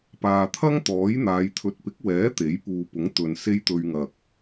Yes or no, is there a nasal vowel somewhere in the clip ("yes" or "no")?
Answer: no